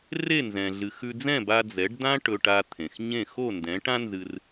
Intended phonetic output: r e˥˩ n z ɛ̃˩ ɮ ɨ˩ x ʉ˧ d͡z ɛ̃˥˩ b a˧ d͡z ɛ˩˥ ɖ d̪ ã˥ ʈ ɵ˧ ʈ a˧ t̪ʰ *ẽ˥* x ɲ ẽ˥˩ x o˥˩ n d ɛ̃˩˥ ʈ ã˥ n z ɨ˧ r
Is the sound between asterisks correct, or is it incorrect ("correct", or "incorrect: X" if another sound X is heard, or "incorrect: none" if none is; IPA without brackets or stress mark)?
incorrect: ẽ˩